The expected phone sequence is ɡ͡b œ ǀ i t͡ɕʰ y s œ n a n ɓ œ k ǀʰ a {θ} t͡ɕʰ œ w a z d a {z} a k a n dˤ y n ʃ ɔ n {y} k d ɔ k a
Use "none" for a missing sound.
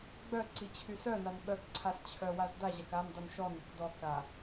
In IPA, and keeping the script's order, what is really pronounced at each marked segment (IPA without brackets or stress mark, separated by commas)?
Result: s, ʑ, y